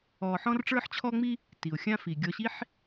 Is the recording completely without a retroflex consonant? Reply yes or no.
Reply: no